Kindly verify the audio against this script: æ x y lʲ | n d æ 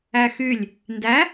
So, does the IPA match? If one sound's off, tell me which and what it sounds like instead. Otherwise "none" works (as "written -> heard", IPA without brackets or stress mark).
none